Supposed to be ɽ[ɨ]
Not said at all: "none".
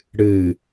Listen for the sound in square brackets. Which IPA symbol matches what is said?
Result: ɨ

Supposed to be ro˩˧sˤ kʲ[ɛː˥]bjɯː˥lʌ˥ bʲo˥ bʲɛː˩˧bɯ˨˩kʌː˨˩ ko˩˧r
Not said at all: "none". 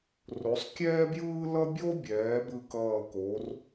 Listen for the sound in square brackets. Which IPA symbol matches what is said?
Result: ɛː˥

